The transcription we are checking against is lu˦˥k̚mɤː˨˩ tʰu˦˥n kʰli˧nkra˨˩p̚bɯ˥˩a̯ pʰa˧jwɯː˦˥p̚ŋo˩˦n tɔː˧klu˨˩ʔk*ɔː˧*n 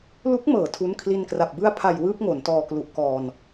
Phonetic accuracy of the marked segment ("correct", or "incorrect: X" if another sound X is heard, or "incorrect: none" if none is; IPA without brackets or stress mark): correct